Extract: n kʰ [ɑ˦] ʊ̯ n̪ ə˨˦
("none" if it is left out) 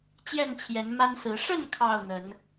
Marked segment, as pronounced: ɑ˥˨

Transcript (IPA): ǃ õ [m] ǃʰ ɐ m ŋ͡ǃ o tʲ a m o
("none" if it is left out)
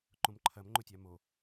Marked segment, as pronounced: m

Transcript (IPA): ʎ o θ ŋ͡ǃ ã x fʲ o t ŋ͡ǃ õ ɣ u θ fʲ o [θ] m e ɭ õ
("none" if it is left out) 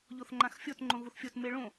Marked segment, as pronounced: t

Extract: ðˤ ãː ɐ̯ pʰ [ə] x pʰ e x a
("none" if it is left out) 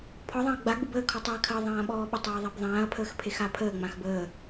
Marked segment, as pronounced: əː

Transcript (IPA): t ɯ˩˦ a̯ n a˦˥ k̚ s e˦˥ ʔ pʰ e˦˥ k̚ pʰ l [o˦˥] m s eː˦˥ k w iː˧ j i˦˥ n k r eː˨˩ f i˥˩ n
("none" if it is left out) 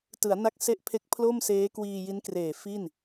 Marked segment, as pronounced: o˥˩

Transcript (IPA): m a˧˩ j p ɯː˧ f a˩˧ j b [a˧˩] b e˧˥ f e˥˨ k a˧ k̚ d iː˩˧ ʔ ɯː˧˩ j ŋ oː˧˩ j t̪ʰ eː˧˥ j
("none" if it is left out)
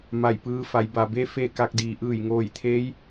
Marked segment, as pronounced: a˩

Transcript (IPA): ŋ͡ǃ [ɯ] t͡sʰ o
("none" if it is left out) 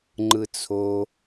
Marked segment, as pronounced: ɯ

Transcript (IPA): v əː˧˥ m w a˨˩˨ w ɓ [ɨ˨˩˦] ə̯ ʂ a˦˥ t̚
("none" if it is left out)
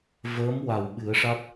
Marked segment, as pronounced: ɨ˨˩˦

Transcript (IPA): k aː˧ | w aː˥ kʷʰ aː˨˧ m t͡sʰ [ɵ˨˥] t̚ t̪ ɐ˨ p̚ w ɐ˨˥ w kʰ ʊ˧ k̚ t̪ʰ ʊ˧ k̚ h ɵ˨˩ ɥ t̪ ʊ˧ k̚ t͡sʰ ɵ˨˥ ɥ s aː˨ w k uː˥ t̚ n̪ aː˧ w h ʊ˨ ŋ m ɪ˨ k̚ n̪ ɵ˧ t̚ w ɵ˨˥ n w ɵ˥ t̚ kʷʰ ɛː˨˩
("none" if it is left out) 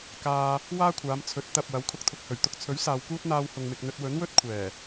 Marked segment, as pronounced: ɵ˨˥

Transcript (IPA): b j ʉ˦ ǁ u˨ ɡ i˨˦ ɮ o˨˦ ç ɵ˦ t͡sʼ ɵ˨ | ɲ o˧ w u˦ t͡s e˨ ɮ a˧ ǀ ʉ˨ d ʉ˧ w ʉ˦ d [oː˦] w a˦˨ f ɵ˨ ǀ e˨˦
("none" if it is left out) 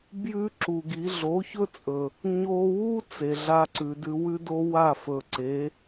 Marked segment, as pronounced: o˦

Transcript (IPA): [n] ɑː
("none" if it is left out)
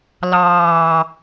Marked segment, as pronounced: l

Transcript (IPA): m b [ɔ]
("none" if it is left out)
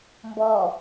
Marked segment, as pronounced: ɔ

